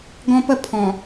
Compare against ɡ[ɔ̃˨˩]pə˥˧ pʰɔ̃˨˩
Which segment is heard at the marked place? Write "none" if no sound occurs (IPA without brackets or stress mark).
ɔ̃˦